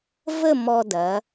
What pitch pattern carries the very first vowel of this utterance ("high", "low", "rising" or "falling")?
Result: falling